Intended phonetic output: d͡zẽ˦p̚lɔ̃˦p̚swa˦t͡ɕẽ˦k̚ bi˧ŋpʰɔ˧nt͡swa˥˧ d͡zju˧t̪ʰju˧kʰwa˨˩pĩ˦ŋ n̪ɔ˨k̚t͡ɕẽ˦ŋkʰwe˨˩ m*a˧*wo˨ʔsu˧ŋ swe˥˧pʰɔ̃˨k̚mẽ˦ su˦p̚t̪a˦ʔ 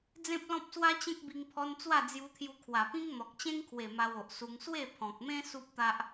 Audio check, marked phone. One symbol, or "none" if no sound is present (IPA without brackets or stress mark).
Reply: a˧